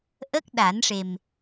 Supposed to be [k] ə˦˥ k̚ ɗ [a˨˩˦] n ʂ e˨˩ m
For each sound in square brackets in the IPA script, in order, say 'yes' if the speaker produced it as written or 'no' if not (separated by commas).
no, yes